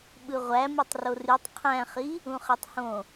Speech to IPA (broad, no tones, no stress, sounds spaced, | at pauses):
ɓ ɯ ʁʷ æ m ɯ tˤ r o r y tˤ qʰ æ̃ χ i | ũ χ e tˤ h õ